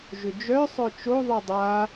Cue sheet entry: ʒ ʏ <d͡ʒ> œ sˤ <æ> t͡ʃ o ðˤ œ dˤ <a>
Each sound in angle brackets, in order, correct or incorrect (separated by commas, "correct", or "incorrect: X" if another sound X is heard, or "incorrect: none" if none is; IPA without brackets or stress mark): correct, incorrect: œ, correct